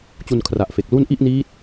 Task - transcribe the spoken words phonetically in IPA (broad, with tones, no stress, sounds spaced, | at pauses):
t͡ɕ u˧ n kʰ r a˨˩ ʔ f e˨˩ k̚ l u˥˩ n ʔ i˥˩ ʔ n iː˦˥ t̚